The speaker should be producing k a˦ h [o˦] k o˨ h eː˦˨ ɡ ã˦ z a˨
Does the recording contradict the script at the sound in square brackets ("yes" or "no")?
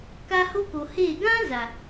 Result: no